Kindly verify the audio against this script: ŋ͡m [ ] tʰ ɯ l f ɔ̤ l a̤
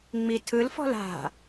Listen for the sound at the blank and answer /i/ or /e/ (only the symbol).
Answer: i